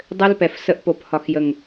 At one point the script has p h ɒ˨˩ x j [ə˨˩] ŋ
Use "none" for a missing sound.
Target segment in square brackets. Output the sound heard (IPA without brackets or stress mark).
ə˨˩